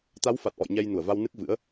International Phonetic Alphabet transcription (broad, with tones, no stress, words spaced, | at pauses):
t̪a˨˦wfa˨˩t̚ʔɔ̰˧˨j ɲɛ˧jnu˧˩ə̯va˧wnɨ˦˥k̚ vɨ̰˧˥ə̯